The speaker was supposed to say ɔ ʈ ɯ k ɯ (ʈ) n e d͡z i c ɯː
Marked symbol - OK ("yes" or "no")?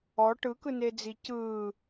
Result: no